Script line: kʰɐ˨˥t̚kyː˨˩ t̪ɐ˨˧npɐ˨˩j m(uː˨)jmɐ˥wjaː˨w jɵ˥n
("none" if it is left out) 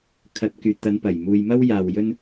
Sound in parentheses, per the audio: uː˨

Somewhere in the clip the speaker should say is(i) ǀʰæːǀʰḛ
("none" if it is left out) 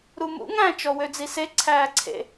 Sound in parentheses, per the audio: e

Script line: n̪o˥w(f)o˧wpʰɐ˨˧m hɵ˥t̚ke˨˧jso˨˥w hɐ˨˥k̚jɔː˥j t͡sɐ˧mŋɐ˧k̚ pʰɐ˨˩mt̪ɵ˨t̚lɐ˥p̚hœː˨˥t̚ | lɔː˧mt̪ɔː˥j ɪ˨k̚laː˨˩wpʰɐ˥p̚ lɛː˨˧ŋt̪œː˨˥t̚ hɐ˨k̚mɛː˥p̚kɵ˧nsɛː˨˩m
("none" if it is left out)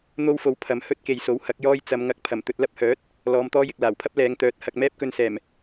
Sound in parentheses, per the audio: f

